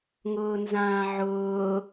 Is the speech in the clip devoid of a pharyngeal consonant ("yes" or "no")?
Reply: no